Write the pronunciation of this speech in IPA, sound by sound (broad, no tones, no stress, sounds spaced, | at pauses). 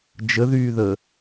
d͡ʒ ə ð yː ð əː